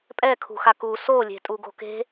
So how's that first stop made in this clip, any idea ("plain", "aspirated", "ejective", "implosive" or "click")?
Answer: ejective